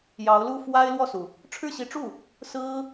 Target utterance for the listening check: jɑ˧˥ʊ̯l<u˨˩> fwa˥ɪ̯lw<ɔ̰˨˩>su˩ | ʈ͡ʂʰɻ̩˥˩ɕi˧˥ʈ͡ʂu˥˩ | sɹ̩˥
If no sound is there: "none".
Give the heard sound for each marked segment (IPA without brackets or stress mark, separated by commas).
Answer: u˥˩, ɔ˥˩